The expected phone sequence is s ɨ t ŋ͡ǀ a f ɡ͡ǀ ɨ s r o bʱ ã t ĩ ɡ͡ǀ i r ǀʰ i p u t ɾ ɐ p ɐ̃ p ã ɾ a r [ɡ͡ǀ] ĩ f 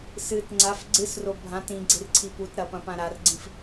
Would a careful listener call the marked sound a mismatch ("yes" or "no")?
no